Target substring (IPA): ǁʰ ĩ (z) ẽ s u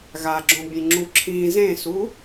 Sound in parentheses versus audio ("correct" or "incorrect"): correct